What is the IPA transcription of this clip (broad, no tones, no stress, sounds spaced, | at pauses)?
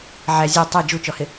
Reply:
ʕ æ zʲ ɛ tˤ ɛ d͡ʒ u t͡ʃ ɔ h ɪ